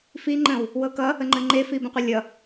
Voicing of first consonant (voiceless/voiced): voiceless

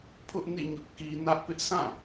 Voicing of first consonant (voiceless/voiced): voiceless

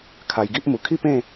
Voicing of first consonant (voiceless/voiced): voiceless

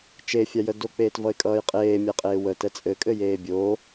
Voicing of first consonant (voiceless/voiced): voiceless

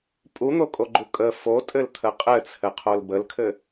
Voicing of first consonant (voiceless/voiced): voiceless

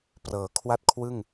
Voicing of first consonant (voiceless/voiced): voiceless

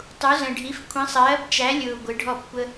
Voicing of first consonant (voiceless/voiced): voiceless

